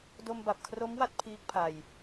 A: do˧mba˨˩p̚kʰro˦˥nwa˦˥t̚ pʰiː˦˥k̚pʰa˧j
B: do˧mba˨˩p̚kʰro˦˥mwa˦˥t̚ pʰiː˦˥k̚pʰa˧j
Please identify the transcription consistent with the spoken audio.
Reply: B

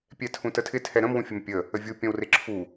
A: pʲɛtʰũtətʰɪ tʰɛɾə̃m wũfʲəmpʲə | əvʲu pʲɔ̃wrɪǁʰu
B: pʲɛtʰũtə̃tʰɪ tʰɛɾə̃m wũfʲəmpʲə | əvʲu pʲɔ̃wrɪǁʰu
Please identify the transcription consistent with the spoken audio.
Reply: A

